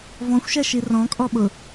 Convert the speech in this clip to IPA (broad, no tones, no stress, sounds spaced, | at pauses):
v ɔ̃ xʷ ʃ ɛ ʃ i r ɔ̃ kʼ ɔ ɓ ʊ